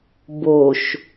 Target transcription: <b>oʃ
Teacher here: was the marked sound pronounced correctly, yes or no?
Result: yes